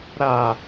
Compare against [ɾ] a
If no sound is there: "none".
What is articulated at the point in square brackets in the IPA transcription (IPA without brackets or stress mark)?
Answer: ɾ